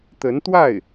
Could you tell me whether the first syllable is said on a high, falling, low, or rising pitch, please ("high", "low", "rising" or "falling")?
rising